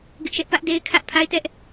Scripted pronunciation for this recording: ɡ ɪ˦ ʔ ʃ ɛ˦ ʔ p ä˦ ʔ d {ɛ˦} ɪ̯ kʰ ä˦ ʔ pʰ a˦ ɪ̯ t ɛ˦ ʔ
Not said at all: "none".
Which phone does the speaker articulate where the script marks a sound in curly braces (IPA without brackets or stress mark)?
e˦